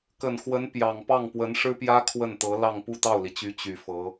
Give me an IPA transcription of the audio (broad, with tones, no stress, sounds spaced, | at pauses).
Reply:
k ə˨˩ n x w ə˧˥ n p j ɑ˨˩ ŋ p ɑ˥˩ ŋ p w ə˧˥ n ʂ ɻ̩˥ p j ä˥ kʰ w ə˥˩ n t̪ ɤ˧˥ l ɑ˥˧ ŋ p u˥˧ t̪ ɑ˥˩ ʊ̯ l i˩ t͡ɕ y˧˥ t͡ɕ y˨˩ f ɤ˧˥